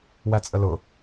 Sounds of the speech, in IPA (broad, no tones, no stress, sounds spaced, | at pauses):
w æ t͡sʼ ə l ʊ